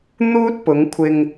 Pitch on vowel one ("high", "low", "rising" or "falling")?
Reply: high